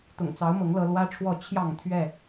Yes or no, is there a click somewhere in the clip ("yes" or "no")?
no